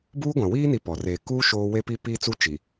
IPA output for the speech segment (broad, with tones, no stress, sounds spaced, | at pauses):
b uː˦ ɡʷ ã˨ w iː˦ n i˦ p ɔ˨ r eː˨ k uː˦ ʃ oː˦ w e˦ p i˦ p iː˦ t͡s u˦ t͡ʃ i˨